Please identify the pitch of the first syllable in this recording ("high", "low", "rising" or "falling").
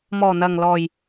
low